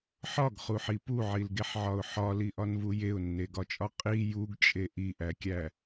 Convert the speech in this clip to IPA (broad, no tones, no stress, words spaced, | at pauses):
ħɒɡχuħi puʕilɡeħʕɒʊ̯ ħɒliʔɒnvu jeʊ̯nːeɡɒt͡ʃʼɒ qʼi juɡt͡ʃʼe ʔiʔækʲæ